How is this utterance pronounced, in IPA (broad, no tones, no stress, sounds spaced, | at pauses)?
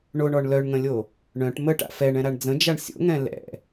ɳ o ɳ ɔ ɳ l œ ɳ ŋ ə̃ lʲ o | ɳ œ̃ ʈ m ə ʈ a̰ f ɛ ɳ ɛ̃ ɾ a ɳ d͡z ə̃ d͡ʒ a ɳ sʲ o̰ ŋ ɛ̃ l ɛ̰